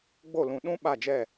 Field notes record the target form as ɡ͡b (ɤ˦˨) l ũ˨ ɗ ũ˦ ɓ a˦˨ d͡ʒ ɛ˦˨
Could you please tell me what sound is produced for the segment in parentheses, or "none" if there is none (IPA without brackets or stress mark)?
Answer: o˦˨